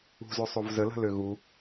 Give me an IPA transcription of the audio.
ṳ z ø sˤ o v z ə l ə̤ l ø ɣ u

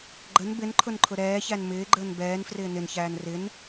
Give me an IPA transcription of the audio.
ɡ͡ǃ ə n b ɪ n ǃʰ ʊ n ǃʰ ʊ ɾ ɛː ç æ n m ɪː ɡ͡ǃ əː n b ɛː n f r ɪː n ɪ n ç æː n r ɪ n

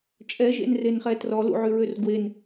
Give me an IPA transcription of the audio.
t͡ʃʼ ɛ ʒ ḛ n r e n χ ɛ t r ɔ l ṵ ʕ y ɹ ø r ɡ w e n

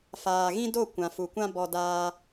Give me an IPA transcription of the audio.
f aː˨ ɣ ĩ˦ d o˦˨ kʷ ã˨ f u˨ kʷ ã˦ b ɔ˧ d aː˦

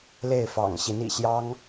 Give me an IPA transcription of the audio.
l e˥˩ ɪ̯ f ɑ̰˨˩ ŋ ɕ i˧˥ n ḭ˨˩ ɕ j ɑ˥ ŋ

